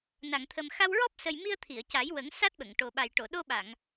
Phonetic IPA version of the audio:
n a˨˩˨ ŋ t̪ʰ ə˨˩ m x a˧ w ɹ ɔ˦˥ p̚ s ə˨˩ j m i˧ ə̯ t̪ʰ i˨˩˨ ə̯ c a˨˩˦ j w ə˨˩˦ ŋ s a˦˥ t̚ ɓ ə˨˩˨ ŋ ʈ o˨˩ ɓ a˨˩ j ʈ o˨˩˨ ɗ o˧ ɓ a˨˩˨ ŋ

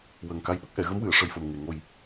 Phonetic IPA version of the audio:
w əː˨˩ ŋ k a˧ j ɓ ə˦˥ k̚ ʔ ɛ˨˩˨ ɣ ə˧˥ m w ɨ˨˩˨ ə̯ ʂ ə˧ j f ə˨˩ m ŋ e˨˩ ŋ o˨˩ j

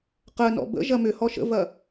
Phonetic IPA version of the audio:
q ə n ɔ̰ b ə̰ ʒ ɐ m ʏ h ɔ ʃ ə̰ v ɐ

